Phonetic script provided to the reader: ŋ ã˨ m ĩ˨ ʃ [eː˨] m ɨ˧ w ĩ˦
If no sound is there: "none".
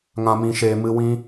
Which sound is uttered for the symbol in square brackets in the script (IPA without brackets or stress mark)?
eː˨